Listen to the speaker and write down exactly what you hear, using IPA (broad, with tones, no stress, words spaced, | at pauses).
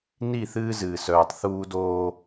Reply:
ni˦˨θɨː˦zɨː˨ sœː˨tˤθuː˦doː˦